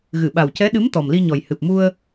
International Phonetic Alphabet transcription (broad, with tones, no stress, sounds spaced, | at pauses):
ɣ ɨ˨˩˨ ɓ a˨˩ w c ɛ˧˥ ɗ ɨ˧˥ m t̪ ɔ˨˩ m l i˧ ɲ ɔ˨˩ j h ɨ˨˩ p̚ m u˧ ə̯